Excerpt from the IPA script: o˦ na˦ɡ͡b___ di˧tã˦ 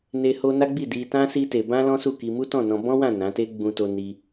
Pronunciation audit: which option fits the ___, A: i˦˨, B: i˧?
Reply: A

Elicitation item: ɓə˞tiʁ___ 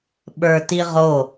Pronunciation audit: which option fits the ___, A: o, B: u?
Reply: A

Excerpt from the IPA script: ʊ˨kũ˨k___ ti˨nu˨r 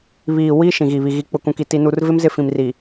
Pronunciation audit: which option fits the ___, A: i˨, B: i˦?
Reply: A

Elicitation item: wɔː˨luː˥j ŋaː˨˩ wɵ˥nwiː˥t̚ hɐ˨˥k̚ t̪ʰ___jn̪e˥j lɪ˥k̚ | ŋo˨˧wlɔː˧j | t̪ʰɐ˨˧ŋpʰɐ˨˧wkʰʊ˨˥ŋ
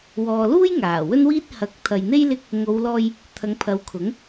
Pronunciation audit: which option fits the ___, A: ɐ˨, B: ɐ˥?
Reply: A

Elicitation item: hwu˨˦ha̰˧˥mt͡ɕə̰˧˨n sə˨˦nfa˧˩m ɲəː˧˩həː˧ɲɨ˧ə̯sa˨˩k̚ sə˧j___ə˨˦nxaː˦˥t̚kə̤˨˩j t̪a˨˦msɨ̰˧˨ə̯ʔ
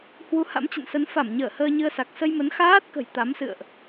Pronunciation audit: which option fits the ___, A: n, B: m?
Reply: B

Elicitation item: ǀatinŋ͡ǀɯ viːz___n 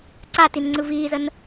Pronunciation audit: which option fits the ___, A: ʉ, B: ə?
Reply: B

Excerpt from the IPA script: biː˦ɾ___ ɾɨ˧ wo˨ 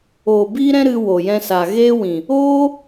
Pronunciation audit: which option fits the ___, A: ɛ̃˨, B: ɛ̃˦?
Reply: B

